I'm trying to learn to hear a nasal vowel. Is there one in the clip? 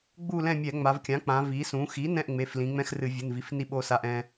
yes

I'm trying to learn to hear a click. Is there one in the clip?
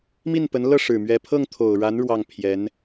no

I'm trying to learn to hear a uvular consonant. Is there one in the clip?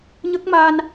no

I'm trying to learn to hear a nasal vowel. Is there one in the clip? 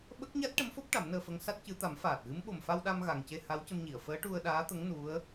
no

